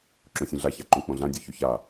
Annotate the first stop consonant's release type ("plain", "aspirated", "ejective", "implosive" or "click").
click